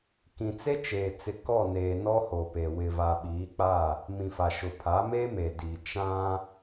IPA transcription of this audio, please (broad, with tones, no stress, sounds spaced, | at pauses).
k ĩ˨ t͡s e˦ t͡ʃ eː˨ t͡s ɪ˨ k ɔ˦˨ n eː˨ n ɔ˦ h o˨ p e˨ w ɪ˨ v a˨ ɓ iː˨˦ k͡p a˦˨ | m ĩ˨ f a˨ ʃ ʊ˨ pʰ a˨˦ m e˦ m e˨ d iː˨ t͡ʃ ã˦